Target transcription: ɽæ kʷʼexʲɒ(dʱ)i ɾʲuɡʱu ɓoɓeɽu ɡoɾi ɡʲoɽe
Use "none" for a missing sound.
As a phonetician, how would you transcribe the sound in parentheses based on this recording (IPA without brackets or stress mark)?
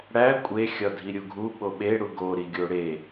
dʱ